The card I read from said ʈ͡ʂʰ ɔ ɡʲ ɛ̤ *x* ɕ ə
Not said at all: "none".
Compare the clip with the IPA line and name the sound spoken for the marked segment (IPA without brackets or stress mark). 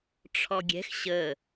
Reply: x